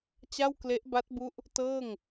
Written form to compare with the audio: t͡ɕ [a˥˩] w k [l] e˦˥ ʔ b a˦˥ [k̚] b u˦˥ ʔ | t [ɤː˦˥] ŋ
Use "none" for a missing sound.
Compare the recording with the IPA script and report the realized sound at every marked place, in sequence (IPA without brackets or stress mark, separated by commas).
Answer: a˥˩, l, t̚, ɤː˥˩